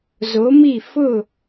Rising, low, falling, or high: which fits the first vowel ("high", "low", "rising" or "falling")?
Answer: rising